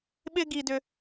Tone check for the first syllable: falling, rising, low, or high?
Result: high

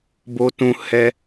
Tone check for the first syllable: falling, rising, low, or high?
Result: high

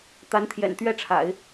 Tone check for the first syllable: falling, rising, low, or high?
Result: rising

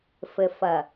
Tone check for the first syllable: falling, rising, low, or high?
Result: low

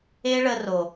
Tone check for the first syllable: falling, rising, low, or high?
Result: high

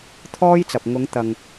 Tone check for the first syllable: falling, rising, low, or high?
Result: high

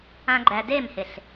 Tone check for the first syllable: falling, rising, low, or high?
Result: high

